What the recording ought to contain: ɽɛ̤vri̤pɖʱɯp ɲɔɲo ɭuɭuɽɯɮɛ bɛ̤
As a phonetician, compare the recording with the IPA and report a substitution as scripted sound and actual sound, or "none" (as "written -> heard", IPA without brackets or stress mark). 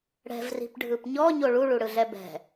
none